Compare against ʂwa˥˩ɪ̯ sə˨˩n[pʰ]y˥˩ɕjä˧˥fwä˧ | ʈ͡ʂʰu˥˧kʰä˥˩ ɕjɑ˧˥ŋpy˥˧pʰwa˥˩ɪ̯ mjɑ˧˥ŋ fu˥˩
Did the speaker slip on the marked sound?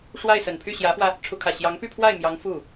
no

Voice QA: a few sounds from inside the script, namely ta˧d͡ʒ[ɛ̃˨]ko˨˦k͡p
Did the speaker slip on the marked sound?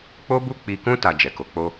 yes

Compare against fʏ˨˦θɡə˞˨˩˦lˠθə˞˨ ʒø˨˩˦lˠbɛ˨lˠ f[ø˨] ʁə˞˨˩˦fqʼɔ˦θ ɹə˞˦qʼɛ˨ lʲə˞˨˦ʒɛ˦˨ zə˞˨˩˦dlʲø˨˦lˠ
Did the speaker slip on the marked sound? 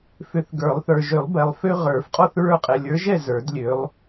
yes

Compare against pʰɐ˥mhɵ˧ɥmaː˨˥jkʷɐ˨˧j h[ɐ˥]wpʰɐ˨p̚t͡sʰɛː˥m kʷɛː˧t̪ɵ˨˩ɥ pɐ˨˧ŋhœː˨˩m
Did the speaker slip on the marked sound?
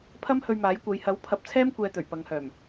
yes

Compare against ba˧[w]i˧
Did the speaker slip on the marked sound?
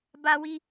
no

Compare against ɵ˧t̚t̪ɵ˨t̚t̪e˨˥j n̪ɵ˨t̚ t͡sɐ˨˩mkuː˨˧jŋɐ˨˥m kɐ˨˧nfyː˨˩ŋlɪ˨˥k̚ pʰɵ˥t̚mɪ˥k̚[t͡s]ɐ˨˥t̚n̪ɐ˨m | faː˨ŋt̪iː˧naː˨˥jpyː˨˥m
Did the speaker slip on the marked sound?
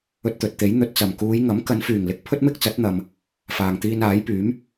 no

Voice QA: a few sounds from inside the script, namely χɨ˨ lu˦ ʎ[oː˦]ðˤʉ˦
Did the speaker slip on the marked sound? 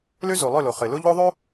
yes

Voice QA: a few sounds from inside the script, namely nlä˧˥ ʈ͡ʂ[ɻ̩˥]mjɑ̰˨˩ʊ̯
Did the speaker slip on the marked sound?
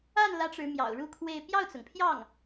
yes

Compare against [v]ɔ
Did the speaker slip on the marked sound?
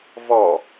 no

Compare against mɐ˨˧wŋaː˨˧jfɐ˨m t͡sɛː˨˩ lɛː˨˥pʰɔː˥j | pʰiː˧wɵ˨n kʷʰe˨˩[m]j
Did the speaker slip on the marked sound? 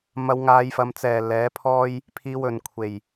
yes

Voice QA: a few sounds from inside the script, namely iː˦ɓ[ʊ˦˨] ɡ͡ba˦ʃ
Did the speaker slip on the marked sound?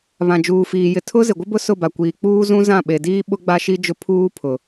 yes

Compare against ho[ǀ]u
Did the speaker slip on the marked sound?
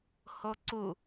no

